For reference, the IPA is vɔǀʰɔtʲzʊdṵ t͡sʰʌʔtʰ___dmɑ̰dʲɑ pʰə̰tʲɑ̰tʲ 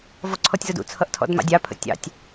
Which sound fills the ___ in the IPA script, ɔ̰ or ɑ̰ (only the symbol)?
ɔ̰